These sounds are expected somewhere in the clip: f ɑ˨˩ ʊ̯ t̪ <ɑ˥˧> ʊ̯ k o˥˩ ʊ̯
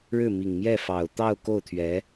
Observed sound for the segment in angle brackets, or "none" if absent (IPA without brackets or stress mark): ɑ˥˧